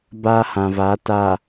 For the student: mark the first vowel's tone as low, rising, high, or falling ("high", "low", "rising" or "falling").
high